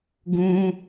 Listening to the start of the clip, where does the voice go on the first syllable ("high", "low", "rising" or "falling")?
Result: high